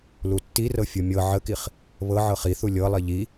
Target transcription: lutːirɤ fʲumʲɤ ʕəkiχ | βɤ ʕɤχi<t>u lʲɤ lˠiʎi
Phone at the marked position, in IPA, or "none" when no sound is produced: θ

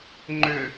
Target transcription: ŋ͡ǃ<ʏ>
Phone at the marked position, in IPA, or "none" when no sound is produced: ʏ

